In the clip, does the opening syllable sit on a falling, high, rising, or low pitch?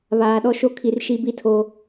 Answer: low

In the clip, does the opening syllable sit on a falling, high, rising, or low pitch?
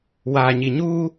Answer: low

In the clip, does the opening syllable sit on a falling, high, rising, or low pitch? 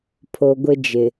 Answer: low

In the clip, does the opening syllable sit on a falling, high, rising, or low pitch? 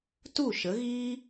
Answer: falling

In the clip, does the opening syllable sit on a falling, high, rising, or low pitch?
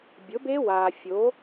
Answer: rising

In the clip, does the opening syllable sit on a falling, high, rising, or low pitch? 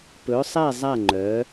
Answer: rising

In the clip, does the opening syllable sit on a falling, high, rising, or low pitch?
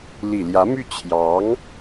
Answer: low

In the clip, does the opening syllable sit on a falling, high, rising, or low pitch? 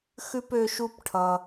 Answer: high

